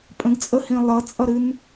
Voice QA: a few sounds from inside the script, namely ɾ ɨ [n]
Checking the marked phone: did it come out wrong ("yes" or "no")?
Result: no